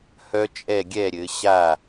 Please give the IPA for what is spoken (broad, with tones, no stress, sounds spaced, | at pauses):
h œ˦˥ t͡ʃʼ ɛ˥˩ ɡʲ ɛ˥˩ ɾʲ ɘ˩˧ ɕ a˥˩